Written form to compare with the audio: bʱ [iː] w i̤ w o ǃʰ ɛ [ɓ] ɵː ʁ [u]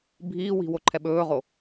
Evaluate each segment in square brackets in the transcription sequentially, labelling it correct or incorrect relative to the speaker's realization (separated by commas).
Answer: correct, correct, incorrect